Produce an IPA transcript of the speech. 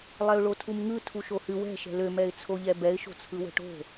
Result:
lˠɛʊ̯ɭotʰumŋɯ tʰuʃohʉ wɛ̤ ʃɛ̤lø mɛɪ̯t͡sʰoʎɛbɛɪ̯ ʃo̤t͡sʰɯwə̤ʈo̤

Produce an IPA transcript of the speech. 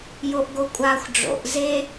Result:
joʔɡokʷʼaxʷ ɖ͡ʐo̰ʔ ze

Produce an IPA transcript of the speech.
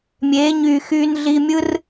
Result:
mʲeː˨˦ ɲyː˨xyː˧nɮi˧mʲɯ˦r

